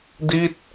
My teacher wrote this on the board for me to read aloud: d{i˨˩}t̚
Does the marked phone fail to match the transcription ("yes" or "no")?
yes